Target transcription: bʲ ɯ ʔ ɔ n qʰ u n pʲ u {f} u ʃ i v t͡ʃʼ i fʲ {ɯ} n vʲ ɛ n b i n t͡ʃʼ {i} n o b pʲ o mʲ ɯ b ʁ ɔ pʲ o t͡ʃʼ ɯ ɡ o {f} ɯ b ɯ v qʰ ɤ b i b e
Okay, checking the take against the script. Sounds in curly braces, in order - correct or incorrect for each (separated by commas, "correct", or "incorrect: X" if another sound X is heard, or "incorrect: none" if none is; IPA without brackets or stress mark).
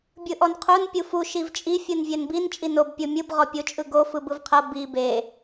correct, correct, correct, correct